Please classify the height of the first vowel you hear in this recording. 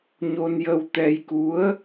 mid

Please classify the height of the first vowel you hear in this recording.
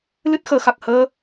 high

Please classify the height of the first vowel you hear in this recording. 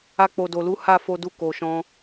low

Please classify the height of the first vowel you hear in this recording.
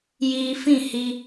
high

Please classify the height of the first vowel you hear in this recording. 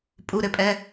high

